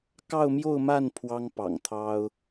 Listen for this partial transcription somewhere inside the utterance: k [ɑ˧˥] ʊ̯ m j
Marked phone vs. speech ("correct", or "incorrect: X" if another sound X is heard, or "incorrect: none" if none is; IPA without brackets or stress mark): incorrect: ɑ˥˧